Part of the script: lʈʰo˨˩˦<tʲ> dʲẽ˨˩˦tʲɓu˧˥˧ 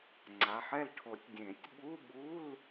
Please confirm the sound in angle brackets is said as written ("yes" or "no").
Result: yes